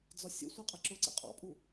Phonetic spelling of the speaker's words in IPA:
d͡z ɒ sʲ ə̰ sʷ ɛ qʼ æ ǁ ʊ ǀ ɛ̰ qʼ ɑ̰ pʼ u

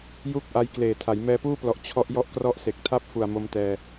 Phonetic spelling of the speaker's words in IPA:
j u˥˩ k̚ ʔ a˦˥ j k l eː˨˩ tʰ a˩˦ j m ɛː˧ p uː˥˩ p l ɔ˨˩ ʔ t͡ɕʰ ɔ˦˥ ʔ j ɔ˥˩ ʔ k r ɔ˥˩ ʔ s e˨˩ k̚ tʰ a˥˩ p̚ f u˨˩ a̯ m o˧ m t ɛː˧

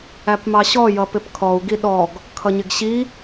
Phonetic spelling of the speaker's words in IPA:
æ p m ɑ ɕ ɔ j ʌ p ɪ p kʰ ɔ u̯ ɡ i ɗ ɔ ɡ | kʰ ʌ ɲ ɪ ɡ ɕ i

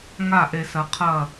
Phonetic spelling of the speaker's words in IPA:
ŋ a˦˨ ʔ e˨ s ɐ˨ qʰ ɐ˦˨

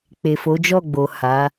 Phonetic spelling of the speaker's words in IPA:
k͡p e˨ f o˨˦ d͡ʒ ɔ˦˨ ɡ͡b o˨ h a˨˦

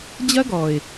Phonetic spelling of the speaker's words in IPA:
d͡ʑ ɐ˦ ɡ ɔ˨ ɪ̯

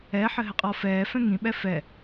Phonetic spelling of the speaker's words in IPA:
ɛ ħ ɘ ɦ ɘ qʼ ɔ f ɛː f ɛ̃ ŋ ĩ ɓ ɛ f ɛ

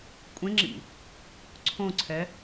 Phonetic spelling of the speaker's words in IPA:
kʷʼ ẽ ŋ͡ǁ ḭ | ǀʰ õ ǀʰ ɛ

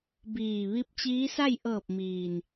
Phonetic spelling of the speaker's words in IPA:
b iː˧˩ ʋ i˧˥ p̚ t͡ɕ iː˧˥ s a˥˨ j ʔ ɤː˧˩ p̚ m iː˩ n

